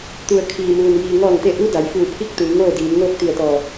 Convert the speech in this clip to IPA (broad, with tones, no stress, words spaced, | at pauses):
t̪u˩ə̯ kʰiː˩muː˩n jiː˩ ŋɔː˧˩ŋt̪e˧˩ ʔu˧˥ da˩˧j fuː˧˩pʰi˥˨k̚ t̪ɯː˩˧ŋoː˥˨diː˩˧m ŋoː˥˨k̚t̪i˧˩ə̯t̪ɔː˧˩